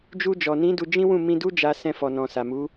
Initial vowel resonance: oral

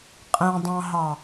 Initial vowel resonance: nasal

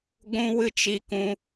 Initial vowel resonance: nasal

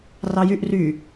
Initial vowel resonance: oral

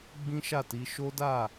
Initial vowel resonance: nasal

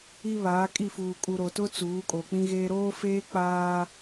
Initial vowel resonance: oral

